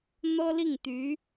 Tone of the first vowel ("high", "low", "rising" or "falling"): high